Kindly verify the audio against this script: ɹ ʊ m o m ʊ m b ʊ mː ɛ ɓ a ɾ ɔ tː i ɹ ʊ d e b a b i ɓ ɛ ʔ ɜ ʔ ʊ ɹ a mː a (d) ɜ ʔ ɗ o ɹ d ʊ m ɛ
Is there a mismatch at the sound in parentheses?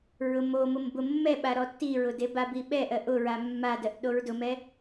no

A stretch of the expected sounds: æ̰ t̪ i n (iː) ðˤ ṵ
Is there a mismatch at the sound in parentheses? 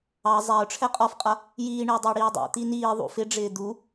no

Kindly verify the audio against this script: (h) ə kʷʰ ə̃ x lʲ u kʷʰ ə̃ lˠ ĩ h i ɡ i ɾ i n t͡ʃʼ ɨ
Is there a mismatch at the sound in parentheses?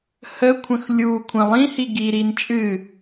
no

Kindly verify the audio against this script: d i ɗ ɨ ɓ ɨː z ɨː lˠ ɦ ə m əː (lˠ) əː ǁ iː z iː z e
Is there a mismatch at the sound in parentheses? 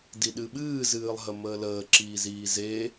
yes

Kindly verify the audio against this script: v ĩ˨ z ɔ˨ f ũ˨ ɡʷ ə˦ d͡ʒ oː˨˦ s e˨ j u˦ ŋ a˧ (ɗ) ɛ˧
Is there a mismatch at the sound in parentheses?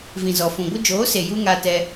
yes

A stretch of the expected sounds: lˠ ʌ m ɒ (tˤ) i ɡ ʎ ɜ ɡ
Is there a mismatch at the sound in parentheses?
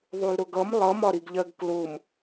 yes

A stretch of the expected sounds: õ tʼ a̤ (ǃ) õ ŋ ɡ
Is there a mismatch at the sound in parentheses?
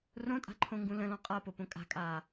yes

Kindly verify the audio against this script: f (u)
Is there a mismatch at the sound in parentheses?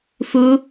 no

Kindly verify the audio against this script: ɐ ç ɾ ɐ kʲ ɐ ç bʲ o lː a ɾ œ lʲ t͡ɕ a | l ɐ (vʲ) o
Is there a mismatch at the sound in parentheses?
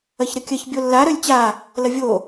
no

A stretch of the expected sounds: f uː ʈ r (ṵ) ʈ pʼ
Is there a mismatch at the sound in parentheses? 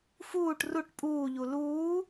yes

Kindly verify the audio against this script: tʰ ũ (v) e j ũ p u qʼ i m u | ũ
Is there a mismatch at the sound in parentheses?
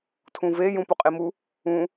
no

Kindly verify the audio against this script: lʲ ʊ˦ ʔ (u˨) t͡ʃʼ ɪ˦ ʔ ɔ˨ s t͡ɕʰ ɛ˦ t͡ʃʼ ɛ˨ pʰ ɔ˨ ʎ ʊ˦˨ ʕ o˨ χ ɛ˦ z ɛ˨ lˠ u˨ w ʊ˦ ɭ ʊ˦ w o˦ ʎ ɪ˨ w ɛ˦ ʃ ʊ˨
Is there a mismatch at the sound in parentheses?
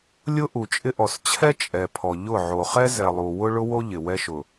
no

